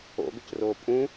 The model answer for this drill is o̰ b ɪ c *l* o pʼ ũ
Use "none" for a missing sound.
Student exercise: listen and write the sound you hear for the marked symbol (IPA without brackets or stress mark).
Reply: r